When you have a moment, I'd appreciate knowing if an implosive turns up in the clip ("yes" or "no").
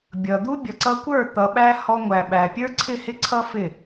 yes